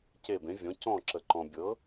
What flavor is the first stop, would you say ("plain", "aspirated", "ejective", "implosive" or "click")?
plain